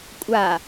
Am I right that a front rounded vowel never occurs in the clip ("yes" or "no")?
yes